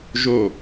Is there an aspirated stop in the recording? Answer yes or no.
no